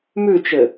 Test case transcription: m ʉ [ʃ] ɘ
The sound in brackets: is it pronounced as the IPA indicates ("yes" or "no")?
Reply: no